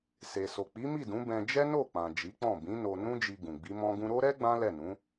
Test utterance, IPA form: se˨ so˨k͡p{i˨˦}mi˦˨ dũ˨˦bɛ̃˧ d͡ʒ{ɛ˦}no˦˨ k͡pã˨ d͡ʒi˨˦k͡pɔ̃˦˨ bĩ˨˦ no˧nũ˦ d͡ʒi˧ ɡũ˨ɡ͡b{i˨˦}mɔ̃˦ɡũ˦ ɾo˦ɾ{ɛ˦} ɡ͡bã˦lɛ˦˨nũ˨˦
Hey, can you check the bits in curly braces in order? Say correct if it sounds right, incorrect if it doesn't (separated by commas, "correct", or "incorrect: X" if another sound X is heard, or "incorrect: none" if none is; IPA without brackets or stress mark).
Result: correct, correct, correct, correct